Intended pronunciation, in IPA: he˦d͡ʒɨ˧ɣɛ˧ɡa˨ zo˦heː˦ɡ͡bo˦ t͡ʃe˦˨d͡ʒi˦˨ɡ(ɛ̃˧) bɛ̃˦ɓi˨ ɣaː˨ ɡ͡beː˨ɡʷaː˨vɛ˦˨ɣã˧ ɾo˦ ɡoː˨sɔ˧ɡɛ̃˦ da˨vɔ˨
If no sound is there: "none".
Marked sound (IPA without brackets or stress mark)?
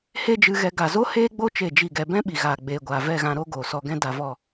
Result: ɛ˧